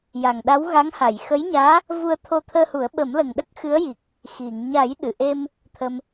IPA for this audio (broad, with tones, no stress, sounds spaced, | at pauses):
j a˨˩ ŋ ɗ a˧˥ w ɣ a˧˥ ŋ h a˨˩˨ j x ə˧˥ j ɲ aː˧˥ | v u˧ ə̯ t̪ʰ o˧ t̪ʰ əː˧ h u˨˩˦ ə̯ ɓ ə˨˩˦ m l ə˨˩ ŋ ɗ ə˦˥ k̚ x ɨ˧˥ ə̯ j i˨˩ k̚ | x i˨˩˨ ŋ ɲ a˨˩˦ j ɗ ɨ˨˩˨ ʔ e˧ m | t̪ʰ ə˧ m